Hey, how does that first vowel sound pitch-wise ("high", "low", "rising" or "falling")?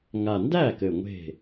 low